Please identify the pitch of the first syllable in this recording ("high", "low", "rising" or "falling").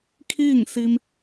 falling